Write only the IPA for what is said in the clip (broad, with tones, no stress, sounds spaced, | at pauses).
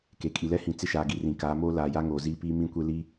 k e˨ kʼ i˨ l ɛ˦ h ĩ˨ t͡s ɪ˦ ʃ aː˨ ɡ i˨ r ĩ˨ k aː˨˦ m oː˦ l aː˨ j a˦ ŋ oː˨ z iː˦ p iː˦ m ĩ˦˨ kʷ e˦ l i˦